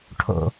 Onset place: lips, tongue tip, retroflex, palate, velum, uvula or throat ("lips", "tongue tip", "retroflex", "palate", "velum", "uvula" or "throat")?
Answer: retroflex